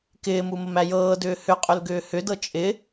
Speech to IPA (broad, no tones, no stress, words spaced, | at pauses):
kɪːmu məmæjɤːdʏː hʏqʼʏl ɡʏːhʏdɤ t͡ʃʼɪ